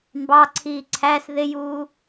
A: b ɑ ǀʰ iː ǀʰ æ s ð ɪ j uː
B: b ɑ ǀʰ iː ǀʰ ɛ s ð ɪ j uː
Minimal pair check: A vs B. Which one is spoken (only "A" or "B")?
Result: A